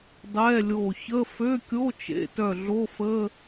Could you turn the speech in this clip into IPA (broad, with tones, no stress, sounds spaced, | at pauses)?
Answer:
dˤ ɛː˧˥˧ lʲ oː˧˩ ç ə˧˥˧ f ø˧˥˧ kʲ o˧˥˧ t͡ʃ ḛ˧˥˧ t œ˧˩ ɮ o˧˥˧ f ə˧˥˧